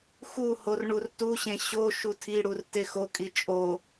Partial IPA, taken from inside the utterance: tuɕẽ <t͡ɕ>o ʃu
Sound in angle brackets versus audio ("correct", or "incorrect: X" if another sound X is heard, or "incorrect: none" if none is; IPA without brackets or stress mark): incorrect: ɕ